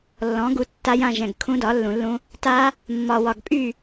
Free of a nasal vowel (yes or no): no